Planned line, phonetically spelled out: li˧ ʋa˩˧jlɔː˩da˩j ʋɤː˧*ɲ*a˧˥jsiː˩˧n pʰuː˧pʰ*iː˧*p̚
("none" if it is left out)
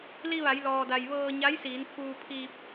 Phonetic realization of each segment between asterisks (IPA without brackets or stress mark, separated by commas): ɲ, iː˧